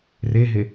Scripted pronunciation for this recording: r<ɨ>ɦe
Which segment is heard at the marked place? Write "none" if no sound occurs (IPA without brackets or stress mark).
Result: e